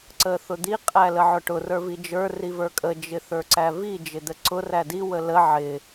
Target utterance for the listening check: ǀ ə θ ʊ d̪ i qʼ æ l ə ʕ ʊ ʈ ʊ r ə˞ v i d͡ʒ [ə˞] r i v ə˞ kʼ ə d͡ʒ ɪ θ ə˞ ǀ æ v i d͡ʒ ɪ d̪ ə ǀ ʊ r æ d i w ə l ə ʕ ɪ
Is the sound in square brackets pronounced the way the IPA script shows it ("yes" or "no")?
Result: yes